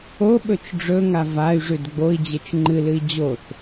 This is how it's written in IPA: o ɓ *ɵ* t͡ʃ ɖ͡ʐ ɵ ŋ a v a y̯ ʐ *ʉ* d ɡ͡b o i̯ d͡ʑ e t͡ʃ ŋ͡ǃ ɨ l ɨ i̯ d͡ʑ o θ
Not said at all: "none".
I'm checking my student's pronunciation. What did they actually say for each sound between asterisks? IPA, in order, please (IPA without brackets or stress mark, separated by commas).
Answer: ɵ, ʉ